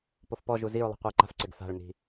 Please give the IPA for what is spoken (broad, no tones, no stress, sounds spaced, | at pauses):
p o f p ɔ ʒ u z i ɹ lˠ i̤ qʷ eː ǃ a̤ f ǀ e ɡ f a̤ ɭ n i̤